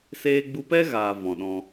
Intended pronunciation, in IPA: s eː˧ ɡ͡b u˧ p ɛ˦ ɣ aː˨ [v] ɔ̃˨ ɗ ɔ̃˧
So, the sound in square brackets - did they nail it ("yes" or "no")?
yes